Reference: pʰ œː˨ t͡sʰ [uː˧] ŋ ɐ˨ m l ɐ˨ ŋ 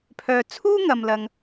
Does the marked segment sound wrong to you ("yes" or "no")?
yes